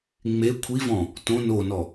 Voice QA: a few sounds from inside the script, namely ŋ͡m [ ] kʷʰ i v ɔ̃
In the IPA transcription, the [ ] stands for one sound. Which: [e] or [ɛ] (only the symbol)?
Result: e